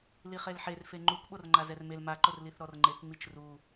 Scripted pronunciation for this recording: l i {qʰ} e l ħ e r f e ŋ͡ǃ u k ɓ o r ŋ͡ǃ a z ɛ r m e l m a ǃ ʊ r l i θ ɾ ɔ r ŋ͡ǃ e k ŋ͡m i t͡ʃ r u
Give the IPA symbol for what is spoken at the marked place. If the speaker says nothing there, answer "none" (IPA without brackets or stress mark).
χ